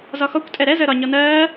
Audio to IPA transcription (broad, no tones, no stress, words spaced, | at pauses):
zɒxɔkʷ tʼɛɾɛ zəːɾɒ ɲɔnɜː